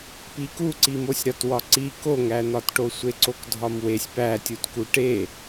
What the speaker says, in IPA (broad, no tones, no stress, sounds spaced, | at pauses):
p i k u ǀ i m o sʲ ɾ ɒ t w ɒ ǀ i k o ŋ æ n̪ ɒ t ʈ o sʷ e ǀ o k dʱ ɒ m w e sʲ p æ tʲ u t k u ʈ e